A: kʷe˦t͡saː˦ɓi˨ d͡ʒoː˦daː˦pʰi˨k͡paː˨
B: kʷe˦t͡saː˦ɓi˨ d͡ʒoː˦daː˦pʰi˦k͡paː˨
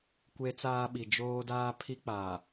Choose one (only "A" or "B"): B